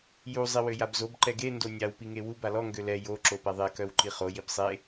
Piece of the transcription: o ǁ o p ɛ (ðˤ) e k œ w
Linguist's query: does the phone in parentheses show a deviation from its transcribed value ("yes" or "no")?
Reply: no